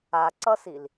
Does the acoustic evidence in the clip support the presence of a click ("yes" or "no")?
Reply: yes